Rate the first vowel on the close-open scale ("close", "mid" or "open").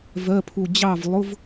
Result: mid